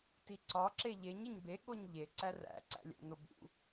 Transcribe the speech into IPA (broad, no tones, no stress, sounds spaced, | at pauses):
t i ǀ ɒ ǁ e ʎ e ɲ e ɲ b e ɠ o ɲ ʎ e ǀ æ r æ̰ ǀ æ̰ lʲ æ̰ n o b ṵ